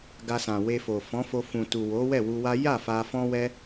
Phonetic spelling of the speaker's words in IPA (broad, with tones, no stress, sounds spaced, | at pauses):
ɡ a˧ s ã˨ w e˧ f o˨ f ɔ̃˨˦ f o˧ f ũ˨ t u˨ w o˨˦ w ɛ˦˨ w u˧ w a˦ j a˦˨ f a˧ f ɔ̃˦ w ɛ˦